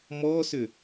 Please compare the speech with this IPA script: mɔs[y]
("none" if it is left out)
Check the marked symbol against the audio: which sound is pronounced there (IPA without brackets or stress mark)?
ʏ